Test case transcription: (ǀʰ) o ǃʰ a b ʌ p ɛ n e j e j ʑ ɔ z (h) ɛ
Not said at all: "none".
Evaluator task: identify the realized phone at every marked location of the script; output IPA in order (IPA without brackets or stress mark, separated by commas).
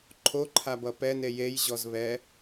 ǃʰ, β